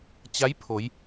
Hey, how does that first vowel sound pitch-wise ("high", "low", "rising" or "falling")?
rising